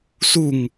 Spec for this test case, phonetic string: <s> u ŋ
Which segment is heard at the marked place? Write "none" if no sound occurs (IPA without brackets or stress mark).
s